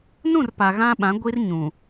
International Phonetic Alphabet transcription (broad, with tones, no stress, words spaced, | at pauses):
nũ˦˨r pa˨ɣã˦ɓã˨˦ ɡʷi˦rɲũ˨